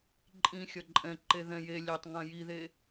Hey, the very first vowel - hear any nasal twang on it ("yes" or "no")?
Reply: yes